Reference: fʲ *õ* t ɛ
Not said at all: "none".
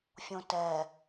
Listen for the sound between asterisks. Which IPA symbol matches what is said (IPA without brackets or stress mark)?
õ